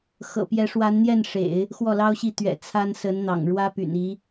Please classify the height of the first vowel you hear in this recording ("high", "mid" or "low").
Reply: mid